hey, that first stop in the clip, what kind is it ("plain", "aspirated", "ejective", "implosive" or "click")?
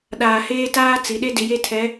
implosive